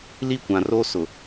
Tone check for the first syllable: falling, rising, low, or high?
falling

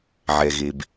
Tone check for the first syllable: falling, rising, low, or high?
low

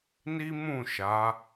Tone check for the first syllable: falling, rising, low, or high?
high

